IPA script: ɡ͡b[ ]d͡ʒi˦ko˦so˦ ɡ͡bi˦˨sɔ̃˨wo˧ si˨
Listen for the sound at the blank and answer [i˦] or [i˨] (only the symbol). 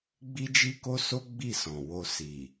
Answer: i˦